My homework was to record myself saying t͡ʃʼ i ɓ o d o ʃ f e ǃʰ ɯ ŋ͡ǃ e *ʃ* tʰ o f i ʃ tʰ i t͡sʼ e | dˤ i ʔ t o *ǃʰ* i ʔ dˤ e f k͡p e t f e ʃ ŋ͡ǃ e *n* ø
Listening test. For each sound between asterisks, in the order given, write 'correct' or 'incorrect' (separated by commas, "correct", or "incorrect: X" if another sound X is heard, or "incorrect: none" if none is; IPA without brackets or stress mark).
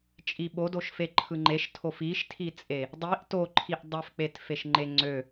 correct, correct, incorrect: ŋ͡ǀ